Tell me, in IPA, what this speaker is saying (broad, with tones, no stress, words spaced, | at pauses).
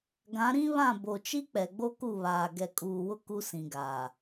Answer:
ɡã˨˦ ɾĩ˦βã˦˨ bo˨t͡ʃi˦k͡pɛ˨ ɡ͡bo˦ku˦˨βaː˨ ɡɛ˨kʼuː˨wʊ˦ ku˦sĩ˨ɡaː˨